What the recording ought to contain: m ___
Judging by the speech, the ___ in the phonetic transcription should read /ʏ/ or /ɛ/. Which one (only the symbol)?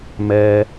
ɛ